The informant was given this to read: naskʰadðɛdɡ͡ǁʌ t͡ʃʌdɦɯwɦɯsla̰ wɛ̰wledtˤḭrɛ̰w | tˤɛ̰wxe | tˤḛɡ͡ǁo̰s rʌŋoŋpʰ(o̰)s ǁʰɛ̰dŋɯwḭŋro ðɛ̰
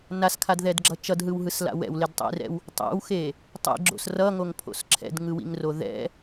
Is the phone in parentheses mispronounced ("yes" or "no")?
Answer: no